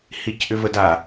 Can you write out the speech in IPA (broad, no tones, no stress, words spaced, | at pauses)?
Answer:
hicʔʏvəda